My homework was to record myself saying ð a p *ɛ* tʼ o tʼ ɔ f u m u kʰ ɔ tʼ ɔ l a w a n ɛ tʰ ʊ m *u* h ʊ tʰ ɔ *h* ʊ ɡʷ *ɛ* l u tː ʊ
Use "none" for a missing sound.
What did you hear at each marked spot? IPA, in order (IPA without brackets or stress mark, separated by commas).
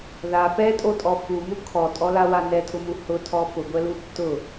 ɛ, u, f, ɛ